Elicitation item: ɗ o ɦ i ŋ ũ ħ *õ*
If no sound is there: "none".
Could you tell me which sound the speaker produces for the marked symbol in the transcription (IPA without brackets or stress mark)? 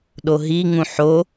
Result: o